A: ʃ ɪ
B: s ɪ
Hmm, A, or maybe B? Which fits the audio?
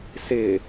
B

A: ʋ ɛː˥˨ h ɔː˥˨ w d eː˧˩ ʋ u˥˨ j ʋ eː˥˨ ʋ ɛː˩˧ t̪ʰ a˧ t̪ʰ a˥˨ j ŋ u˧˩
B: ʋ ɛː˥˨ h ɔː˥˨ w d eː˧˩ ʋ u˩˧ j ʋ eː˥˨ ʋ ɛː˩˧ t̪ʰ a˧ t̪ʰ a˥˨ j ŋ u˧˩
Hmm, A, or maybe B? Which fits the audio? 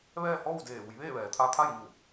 B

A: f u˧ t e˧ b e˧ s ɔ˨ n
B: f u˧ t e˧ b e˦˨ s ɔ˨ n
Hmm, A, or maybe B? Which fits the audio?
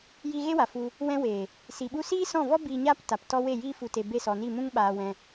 B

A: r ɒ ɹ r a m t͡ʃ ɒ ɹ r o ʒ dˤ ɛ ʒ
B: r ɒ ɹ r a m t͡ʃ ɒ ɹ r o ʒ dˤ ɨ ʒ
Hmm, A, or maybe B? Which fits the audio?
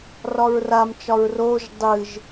B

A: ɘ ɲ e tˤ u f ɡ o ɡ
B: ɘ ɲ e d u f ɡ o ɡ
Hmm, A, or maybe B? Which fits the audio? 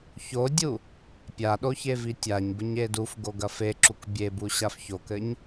B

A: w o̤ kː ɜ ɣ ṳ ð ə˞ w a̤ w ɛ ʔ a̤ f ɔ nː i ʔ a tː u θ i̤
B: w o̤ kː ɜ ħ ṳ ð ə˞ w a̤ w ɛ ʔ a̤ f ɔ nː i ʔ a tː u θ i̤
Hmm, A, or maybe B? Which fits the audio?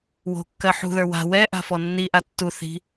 B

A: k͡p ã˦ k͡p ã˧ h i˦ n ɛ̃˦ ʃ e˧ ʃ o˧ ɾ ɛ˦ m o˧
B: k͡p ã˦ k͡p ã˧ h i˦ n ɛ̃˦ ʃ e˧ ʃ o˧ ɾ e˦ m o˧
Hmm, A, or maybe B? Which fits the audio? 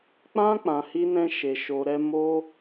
A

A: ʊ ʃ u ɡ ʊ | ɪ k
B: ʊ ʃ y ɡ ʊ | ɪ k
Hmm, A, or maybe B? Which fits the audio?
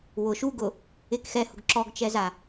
A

